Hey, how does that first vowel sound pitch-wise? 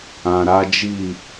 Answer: low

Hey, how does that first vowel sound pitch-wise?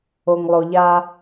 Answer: low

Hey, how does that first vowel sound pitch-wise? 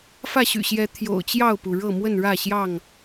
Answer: falling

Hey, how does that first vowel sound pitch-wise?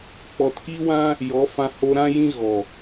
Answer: low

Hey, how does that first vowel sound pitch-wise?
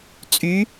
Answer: rising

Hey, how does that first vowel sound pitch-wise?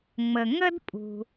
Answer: low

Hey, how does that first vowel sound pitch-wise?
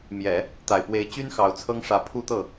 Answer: low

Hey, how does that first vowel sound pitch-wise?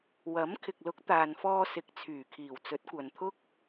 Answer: rising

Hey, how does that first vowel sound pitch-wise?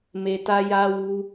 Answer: low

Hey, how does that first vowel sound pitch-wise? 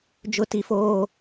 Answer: high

